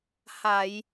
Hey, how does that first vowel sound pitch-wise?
low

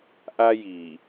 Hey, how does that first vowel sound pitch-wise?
high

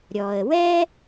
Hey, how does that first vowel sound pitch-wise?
low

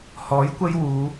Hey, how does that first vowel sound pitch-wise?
rising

